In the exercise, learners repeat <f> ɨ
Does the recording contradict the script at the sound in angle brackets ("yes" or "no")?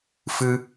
no